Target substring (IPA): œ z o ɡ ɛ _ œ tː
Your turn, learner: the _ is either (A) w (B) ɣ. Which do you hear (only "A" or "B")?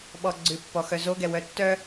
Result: A